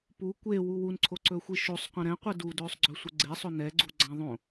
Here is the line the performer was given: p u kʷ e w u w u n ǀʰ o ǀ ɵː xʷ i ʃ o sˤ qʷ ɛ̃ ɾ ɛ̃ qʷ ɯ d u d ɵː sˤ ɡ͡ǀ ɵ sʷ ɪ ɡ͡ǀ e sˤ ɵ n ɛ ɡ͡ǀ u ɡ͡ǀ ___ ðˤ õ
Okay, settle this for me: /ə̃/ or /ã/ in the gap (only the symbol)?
ã